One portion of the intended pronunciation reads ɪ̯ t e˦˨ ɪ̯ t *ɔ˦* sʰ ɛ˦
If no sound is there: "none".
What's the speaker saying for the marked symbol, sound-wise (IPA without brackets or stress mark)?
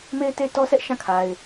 ɔ˦